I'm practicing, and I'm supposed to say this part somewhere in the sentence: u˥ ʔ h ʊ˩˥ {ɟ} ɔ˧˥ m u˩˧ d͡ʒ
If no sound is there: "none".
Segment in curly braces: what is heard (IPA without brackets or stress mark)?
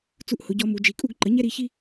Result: ɟ